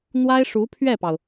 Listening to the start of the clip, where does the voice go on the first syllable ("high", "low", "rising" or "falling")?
high